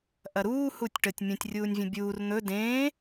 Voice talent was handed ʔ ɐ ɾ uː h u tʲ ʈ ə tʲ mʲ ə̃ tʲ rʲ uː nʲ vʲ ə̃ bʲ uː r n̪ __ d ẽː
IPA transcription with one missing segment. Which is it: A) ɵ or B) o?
A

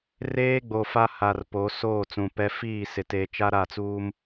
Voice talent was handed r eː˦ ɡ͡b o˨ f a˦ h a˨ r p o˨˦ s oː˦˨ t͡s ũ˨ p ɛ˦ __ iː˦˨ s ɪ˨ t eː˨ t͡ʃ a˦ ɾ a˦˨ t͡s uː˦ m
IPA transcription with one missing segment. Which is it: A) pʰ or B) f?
B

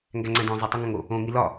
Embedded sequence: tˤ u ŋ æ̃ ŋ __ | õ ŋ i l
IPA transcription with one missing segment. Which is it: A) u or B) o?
B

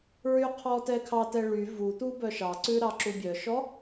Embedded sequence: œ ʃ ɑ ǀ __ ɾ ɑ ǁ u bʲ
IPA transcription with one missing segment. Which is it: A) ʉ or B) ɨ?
A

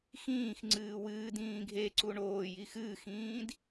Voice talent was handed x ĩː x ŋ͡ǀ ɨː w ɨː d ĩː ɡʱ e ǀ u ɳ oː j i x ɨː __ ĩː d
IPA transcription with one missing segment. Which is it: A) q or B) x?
B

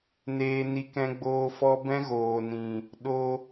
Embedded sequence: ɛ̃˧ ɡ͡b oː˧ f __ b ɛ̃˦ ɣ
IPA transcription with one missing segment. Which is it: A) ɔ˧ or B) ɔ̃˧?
A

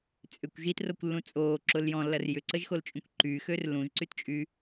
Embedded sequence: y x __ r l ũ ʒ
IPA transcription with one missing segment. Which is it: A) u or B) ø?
B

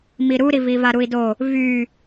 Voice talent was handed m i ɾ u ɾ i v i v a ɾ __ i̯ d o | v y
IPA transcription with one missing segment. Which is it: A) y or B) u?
B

